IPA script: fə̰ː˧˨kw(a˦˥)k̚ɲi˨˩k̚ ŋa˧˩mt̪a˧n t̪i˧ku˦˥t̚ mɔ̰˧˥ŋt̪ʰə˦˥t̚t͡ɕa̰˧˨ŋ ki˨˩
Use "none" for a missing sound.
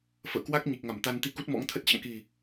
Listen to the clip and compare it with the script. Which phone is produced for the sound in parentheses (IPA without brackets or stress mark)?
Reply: a˦˥